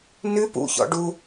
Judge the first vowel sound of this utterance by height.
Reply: high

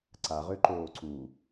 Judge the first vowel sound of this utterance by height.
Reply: low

